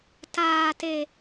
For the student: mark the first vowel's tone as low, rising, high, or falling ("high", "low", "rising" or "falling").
low